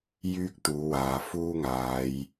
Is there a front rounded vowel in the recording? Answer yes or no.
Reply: yes